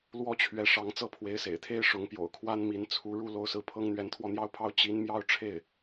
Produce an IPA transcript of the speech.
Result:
l w ɔ˥ t͡ɕʰ ɥ ɛ˧˥ ʂ ɑ˧˥ ŋ t͡s ɤ˥˩ pʰ w e˧˥ ɪ̯ s ḛ˨˩ ɪ̯ t̪ʰ e˥ ɪ̯ ʂ ʊ˧˥ ŋ p j o̰˨˩ ʊ̯ kʰ w a˥ n m i˧˥ n t͡sʰ u˧˥ ɻ u˥˧ l o˥˧ ʊ̯ s ɹ̩˥˩ pʰ ɤ˥ ŋ n̪ ɥ ɛ˧˥ n t̪ʰ w ɔ˥˩ n̪ j ɑ˥ ʊ̯ pʰ ɑ˥ ʊ̯ t͡ɕ i˧˥ n m j ɑ˥˧ ʊ̯ ʈ͡ʂʰ e˥˩ ɪ̯

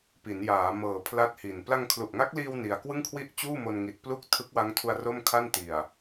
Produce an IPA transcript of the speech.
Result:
p i˩˦ n j aː˩˦ m ɤː˨˩ pʰ l a˥˩ t̚ h i˨˩ n p l a˧ ŋ kʰ l u˨˩ ʔ ŋ a˦˥ k̚ l iː˧ w n i˧ a̯ k w ɯ˥˩ ŋ kʰ w i˥˩ ʔ t͡ɕ uː˥˩ m o˧ n ŋ i˨˩ t̚ p l u˥˩ k̚ tʰ ɯ˦˥ k̚ w a˦˥ ŋ tʰ u˧ a̯ r o˥˩ m kʰ a˥˩ n t i˨˩ a̯

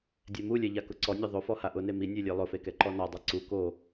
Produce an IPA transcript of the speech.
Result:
dʲ ɛ m u lʲ ɛ ʎ a k ʊ ǀ ɔ nʲ a ðˤ o f ɔ h a ʔ ʊ n e m i nʲ e lʲ e lˠ ʊ f e k ɛ ǃ ɔ n ɔ dˤ a ǀ u k o

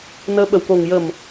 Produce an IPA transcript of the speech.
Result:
n əː˧˥ ɓ ə˨˩ w k o˨˩ ŋ j ə˨˩ m

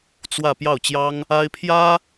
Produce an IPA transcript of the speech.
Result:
t͡s w ä˥˧ p j ɑ˥˩ ʊ̯ t͡ɕ j ɑ˥ ŋ | a˥ ɪ̯ pʰ j ä˥

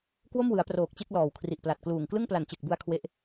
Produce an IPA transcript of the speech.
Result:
k w o˥˩ m w ɯ˩˦ a̯ p r oː˨˩ k̚ t͡ɕ e˥˩ k̚ l ɔː˨˩ w kʰ r i˨˩ ʔ p l a˨˩ t̚ k l uː˨˩ ŋ k l ɯ˥˩ ŋ p l a˨˩ n t͡ɕ e˨˩ k̚ b u˧ a̯ kʰ w e˦˥ ʔ

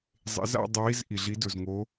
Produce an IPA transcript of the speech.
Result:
zˤ ḛ˨˦ z a̰˥˧ dˤ ə˨˦ w i˨˦ z ʔ i˩ ɮ i˨˦ d ɵ˩ z ŋ o˨˦

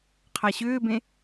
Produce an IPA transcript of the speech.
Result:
qʰ a ɕ ʏː b ẽ

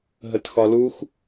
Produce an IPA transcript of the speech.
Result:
ɦ ə t x ɒ l u x

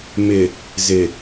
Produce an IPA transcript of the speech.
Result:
m ɪ˨ | z ɪ˨

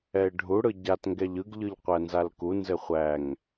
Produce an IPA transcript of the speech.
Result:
ɛ ɪ̯ ɖʱ u ɽ ɯ ɟ a t ŋ ɡ ɛ ʎ ɯ ɡ ʎ ɯ ʎ qʷ æ n z a l k u n z ɘ χʷ æ ŋ

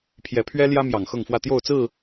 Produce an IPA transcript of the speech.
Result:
pʰ j ɛ˨˦ pʰ ɥ ɛ˦ l j ä˦ m j ɑ˨˩ ŋ x ɤ˥˨ ŋ f w ä˥˨ t̪ j o˥˨ ʊ̯ t͡s ɹ̩˥˨

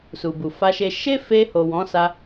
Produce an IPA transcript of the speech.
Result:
s u˨ b u˨ f a˧ ʃ e˧ ʃ e˦ f e˧ h o˨ w ɔ̃˨˦ s a˧

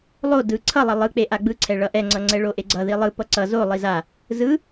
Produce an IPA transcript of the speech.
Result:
lˠ o d ɯ ǀʰ ʌ lˠ ʌ lˠ ɯ k͡p e ʔ a ɡ͡b ɯ ǀʰ ɛ ɭ ʌ ʔ ɛ ŋ͡ǀ ʌ ŋ͡ǀ ɛ ɭ o ʔ e ɡ͡ǀ ʌ ð i lˠ ɯ p ʌ ǀ ʌ z o lˠ i z a | z ɯ

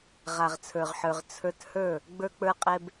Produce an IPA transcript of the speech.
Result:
ʁ a˨ ʁ t͡sʰ ə˞˨ ʁ ħ ə˞˨ ʁ t͡sʰ ə˞˧ t h ə˞˦˨ | ɡ͡b ə˞˧ k͡p ə˞˧ qʼ ɛ˧ b

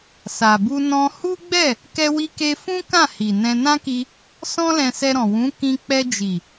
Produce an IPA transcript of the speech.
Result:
s a˨ b u˧ n ɔ̃˧ h u˦ ɡ͡b ɛ˦˨ | k ɛ˧ w i˧ k e˧ f ũ˦ k ã˦˨ h i˨ n ɛ̃˧ n ã˦ k i˧ | s ɔ̃˦ l ɛ̃˧ s ɛ˧ ɾ ɔ̃˨ w ũ˨˦ k ĩ˧ k͡p ɛ˧ d͡ʒ i˨

